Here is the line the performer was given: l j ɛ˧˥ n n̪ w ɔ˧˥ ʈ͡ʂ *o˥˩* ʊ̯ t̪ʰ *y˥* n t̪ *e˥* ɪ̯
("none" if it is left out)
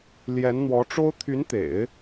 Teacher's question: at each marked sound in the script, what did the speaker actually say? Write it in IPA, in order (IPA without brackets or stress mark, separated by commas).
o˥, y˧˥, ḛ˨˩˦